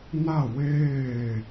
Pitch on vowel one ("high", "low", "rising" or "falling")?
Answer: falling